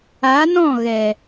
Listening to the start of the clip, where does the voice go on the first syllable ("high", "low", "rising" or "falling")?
rising